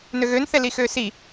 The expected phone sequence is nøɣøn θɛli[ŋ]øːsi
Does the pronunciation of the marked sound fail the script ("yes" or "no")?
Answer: yes